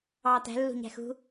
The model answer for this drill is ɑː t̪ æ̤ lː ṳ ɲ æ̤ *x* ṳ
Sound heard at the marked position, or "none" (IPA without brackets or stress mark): x